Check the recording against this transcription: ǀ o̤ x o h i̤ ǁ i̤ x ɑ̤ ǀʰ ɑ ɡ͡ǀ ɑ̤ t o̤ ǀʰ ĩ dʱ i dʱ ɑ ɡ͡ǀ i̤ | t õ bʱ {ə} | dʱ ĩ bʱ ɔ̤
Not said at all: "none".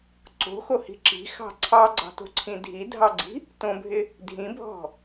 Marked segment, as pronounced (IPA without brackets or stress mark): ɪ